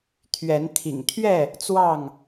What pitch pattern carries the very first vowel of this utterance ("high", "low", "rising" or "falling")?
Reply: rising